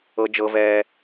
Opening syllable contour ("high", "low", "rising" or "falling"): high